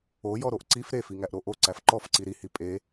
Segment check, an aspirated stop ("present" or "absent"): absent